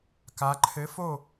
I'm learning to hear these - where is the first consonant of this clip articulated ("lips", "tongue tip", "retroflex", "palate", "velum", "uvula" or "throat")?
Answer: velum